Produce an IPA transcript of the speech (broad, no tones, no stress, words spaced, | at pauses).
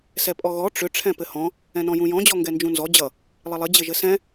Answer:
sɛpʼɔɣɔ ʈ͡ʂʏ ʈ͡ʂʰɛ̃pɘhɔ̃ | ɛ̃nɔ̃jũjɔ̃ d͡ʑɔŋɡɛnd͡ʒũnzɔ d͡ʑʌ | lˠɘlˠɘ d͡ʑɘʒɘsɛ̃